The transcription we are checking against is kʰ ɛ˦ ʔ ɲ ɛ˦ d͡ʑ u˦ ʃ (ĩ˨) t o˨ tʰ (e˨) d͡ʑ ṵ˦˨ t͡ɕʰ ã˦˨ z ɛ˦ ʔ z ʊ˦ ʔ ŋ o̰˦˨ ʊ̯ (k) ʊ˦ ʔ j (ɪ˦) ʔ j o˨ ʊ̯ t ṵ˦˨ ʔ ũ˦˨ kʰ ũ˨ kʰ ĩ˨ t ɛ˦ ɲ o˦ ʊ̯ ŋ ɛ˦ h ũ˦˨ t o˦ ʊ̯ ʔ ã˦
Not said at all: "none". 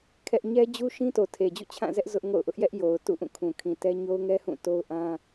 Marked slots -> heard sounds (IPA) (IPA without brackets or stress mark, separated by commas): ĩ˦, e˨, ʔ, ɛ˦